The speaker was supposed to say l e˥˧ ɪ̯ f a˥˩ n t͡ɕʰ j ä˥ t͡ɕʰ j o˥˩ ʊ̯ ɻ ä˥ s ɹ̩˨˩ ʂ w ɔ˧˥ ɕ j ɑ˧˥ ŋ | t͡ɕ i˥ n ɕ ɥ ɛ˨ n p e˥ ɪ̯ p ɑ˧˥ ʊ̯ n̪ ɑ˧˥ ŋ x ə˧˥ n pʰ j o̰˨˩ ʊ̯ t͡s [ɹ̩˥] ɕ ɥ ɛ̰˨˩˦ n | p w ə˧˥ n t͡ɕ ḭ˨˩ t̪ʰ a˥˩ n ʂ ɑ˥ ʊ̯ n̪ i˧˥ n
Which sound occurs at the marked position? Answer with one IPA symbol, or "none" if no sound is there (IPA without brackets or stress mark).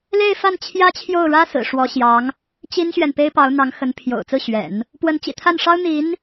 ɹ̩˥˩